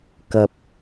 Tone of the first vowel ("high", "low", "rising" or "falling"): high